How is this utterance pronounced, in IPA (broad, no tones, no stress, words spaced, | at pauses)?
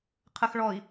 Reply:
qʰəxɭɔi̯